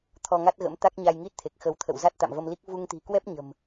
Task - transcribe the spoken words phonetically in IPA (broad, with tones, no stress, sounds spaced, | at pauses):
t̪ʰ ɔ˧ ŋ a˦˥ t̚ ɣ ə̰˧˥ m t̪ a˦˥ k̚ ɲ a˧ j ŋ i˦˥ t̚ t̪ʰ e˨˩ k̚ x ə˨˦ w t̪ʰ ə̰˧˨ w z a˦˥ t̚ t̪ a̰˧˨ m v ə˧ m l i˦˥ k̚ v u˧ ŋ t̪ i̤˨˩ k w ɛ˦˥ p̚ ɲ ə̤˨˩ m